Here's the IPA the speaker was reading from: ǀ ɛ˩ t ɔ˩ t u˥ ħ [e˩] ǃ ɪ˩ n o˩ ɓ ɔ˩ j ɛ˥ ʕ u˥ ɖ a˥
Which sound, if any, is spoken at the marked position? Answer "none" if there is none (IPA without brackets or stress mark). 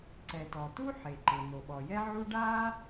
e˩